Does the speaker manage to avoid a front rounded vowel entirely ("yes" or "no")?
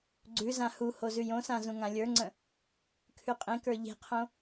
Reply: yes